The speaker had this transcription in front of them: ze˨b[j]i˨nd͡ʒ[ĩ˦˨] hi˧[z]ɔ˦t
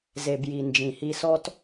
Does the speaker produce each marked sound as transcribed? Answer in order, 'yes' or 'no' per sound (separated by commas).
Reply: yes, no, no